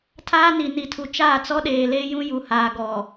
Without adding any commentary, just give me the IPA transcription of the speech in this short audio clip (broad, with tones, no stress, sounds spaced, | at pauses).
tʰ aː˦ n i˨ n i˨ tʰ u˨ t͡ʃ aː˦˨ t͡s ɔ˦ ɗ eː˨ l eː˦ j ũ˦ j u˨ h aː˨ ɡ ɔ˨